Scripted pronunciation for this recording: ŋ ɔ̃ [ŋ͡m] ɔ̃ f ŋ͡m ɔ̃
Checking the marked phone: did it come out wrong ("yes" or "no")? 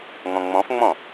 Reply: no